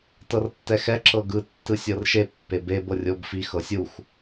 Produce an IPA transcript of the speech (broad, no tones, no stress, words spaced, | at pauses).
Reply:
tɤrtːɛxɛ ǁɤɡɯ tːɯsʲɤrʃe pːebeb ɤrʲobfi xɤsʲux